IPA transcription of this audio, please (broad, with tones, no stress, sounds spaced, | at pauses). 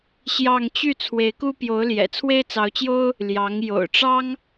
ɕ j ɑ˥˧ ŋ t͡ɕ y˥˩ t͡sʰ w e˧˥ ɪ̯ k u˥ p j o˧˥ ʊ̯ l j ɛ̰˨˩ t͡sʰ w e˥ ɪ̯ t͡s ɑ˧˥ ʊ̯ t͡ɕ j o˥ ʊ̯ | l j ɑ˧˥ ŋ j o̰˨˩ ʊ̯ ʈ͡ʂ ɑ˥ ŋ